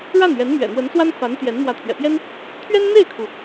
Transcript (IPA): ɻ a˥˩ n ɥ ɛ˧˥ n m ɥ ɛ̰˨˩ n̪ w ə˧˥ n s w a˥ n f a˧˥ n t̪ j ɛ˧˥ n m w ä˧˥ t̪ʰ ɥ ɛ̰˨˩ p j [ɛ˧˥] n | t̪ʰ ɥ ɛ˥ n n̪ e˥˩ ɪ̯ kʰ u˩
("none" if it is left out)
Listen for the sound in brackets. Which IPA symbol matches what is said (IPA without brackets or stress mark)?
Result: ɛ˥